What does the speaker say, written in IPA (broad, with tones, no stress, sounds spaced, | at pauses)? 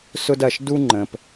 s ʊ˧ d ɐ˨ ʃ d u˧ ŋ͡ǃ ə̃˨ p